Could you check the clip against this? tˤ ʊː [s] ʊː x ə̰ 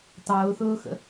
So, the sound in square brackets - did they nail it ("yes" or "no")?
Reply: no